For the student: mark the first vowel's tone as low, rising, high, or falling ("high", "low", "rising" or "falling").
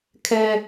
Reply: high